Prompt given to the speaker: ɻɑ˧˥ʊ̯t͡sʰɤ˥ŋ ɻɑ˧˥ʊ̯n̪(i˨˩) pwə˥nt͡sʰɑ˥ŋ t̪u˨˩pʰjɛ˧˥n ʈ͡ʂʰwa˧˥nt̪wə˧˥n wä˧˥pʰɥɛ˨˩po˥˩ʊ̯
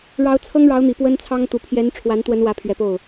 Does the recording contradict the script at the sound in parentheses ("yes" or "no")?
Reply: no